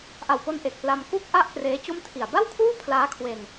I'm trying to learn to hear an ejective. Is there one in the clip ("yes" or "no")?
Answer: no